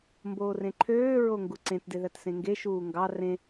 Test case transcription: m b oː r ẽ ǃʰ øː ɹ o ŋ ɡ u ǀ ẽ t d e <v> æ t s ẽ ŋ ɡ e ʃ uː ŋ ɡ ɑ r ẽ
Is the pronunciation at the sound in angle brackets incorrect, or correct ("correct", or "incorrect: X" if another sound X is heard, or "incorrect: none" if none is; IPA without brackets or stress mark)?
incorrect: ð